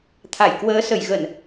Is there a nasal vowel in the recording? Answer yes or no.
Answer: no